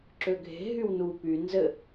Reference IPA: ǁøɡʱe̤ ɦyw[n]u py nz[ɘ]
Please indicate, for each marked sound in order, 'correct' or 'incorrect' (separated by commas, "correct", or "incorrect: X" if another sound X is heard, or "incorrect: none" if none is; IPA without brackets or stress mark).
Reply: correct, correct